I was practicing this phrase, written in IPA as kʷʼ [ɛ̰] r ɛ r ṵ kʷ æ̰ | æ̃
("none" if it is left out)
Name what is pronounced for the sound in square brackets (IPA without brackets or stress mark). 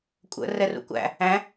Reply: ə̰